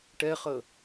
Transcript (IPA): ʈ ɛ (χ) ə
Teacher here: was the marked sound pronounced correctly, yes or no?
yes